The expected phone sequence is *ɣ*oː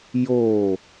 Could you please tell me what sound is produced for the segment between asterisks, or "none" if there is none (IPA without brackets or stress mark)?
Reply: j